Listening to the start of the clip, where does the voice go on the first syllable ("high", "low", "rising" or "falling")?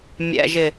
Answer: low